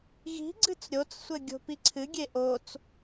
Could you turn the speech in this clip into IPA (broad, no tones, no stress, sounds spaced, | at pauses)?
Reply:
ɣ i̤ ɡ͡ǀ ɨ t͡s ɾʲ o t͡s sʷ ɘ ɡʲ o̤ p i ǀʰ ɨ ɡʲ e ʔ o t͡s